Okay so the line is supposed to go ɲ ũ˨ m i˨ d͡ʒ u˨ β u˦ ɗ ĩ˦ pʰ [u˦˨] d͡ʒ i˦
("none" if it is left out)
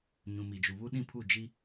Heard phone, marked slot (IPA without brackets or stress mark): u˦˨